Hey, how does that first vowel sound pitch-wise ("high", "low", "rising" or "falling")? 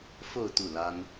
falling